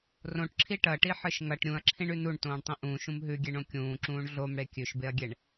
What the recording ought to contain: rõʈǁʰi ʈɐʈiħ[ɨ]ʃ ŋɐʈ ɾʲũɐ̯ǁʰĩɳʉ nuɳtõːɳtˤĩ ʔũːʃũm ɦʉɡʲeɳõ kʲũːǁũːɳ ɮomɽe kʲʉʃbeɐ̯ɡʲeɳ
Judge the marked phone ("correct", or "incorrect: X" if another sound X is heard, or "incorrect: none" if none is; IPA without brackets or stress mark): correct